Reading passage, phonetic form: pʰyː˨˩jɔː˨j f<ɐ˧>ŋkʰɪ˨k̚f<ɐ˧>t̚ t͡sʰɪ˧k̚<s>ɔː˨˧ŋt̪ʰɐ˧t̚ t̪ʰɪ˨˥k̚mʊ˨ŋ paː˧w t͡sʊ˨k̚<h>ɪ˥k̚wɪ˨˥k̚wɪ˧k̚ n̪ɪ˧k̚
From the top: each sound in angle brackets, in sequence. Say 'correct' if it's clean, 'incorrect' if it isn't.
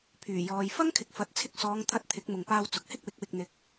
incorrect: ɐ˥, incorrect: ɐ˨˥, correct, correct

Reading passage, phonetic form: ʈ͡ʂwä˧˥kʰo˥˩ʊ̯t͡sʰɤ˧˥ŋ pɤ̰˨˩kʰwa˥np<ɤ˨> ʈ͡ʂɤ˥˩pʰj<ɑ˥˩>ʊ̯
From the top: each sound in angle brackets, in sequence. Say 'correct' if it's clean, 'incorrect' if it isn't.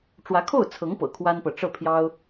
correct, incorrect: ɑ˥

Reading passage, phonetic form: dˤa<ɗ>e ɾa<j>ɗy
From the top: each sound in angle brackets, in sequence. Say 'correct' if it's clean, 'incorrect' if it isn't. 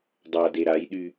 incorrect: d, correct

